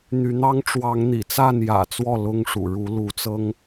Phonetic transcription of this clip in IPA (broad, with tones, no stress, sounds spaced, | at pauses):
n̪ y˨˦ n̪ ɑ˦ ŋ ʈ͡ʂ w ɑ˨˦ ŋ n̪ ḭ˨˩ t͡s a˥˨ n j ä̰˨˩ t͡s w ɔ˥˨ l ʊ˦ ŋ ʂ ṵ˨˩ ɻ u˨˦ l u˨˦ t͡s ɤ˦ ŋ